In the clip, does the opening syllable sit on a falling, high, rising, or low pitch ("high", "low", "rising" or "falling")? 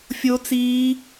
high